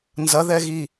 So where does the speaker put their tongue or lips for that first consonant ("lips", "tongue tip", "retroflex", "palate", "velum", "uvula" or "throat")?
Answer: tongue tip